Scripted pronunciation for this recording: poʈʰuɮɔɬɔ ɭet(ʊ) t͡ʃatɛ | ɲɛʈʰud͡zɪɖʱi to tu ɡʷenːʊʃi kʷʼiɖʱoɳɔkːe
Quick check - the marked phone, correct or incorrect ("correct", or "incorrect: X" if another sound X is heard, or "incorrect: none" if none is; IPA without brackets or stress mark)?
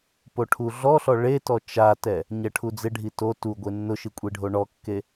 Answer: incorrect: ɔ